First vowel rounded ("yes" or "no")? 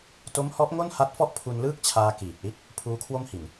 yes